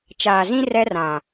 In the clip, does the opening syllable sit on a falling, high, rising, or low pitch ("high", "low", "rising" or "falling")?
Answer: low